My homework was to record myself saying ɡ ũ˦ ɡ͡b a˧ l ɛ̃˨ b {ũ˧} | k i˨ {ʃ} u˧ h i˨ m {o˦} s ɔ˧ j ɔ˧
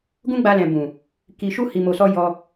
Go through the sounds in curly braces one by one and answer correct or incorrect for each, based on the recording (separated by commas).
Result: incorrect, correct, incorrect